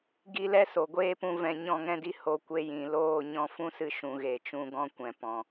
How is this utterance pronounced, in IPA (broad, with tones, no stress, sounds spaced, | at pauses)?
ɡ i˦ l ɛ˦ s o˨ ɡʷ eː˦ p ũ˧ v ɛ̃˧ ɲ ɔ̃˦˨ ŋ ɛ̃˦ d i˦ h o˧ kʷ e˧ j ĩ˨ l oː˦˨ ɲ ɔ̃˧ f ũ˦ s ɨ˧ ʃ ũ˨ ɣ e˨ t͡ʃ ũ˧ ɡ ɔ̃˦ kʷ ɛ̃˨ p ɔ̃˨